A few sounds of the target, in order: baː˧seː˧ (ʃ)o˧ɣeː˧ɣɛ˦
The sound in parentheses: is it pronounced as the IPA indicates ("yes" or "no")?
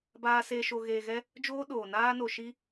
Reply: yes